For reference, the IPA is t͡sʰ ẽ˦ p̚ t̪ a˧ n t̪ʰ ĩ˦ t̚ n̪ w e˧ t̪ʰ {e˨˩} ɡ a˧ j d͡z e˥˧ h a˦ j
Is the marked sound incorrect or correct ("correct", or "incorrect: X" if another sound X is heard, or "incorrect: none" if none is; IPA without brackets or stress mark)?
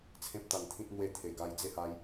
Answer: correct